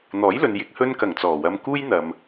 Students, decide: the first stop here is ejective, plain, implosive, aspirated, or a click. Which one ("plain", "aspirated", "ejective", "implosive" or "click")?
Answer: plain